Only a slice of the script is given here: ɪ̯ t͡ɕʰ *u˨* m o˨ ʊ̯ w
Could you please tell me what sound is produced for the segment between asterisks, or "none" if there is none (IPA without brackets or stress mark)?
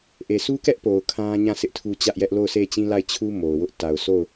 u˦